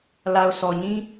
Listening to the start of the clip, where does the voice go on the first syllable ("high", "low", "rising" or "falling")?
low